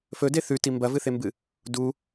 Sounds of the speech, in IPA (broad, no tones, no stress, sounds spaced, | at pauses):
f ɵ d e θ ʉ t i m b ɐ v ɨ θ e m b ɨ | d u